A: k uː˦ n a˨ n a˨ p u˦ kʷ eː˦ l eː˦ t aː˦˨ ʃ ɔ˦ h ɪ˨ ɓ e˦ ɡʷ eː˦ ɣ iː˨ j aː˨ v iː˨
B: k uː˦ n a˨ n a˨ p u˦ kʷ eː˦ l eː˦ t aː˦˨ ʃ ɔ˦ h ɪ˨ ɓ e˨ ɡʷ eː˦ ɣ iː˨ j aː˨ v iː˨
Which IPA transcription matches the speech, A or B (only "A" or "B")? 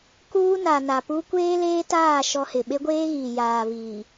A